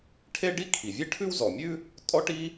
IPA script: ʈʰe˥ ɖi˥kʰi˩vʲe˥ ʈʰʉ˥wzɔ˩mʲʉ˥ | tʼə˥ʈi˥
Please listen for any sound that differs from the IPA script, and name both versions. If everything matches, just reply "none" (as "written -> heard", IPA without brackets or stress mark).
ə˥ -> ɔ˥